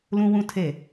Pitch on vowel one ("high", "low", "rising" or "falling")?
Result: high